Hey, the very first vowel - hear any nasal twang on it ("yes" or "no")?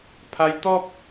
no